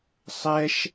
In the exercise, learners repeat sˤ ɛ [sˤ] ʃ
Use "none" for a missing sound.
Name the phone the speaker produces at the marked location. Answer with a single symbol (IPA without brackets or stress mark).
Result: none